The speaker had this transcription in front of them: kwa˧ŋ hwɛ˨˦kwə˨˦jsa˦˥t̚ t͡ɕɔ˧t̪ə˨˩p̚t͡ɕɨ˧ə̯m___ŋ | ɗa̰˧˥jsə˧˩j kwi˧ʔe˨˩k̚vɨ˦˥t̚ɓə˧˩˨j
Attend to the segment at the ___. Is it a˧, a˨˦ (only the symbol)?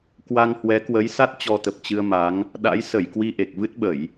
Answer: a˨˦